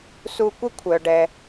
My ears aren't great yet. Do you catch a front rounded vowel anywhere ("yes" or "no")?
yes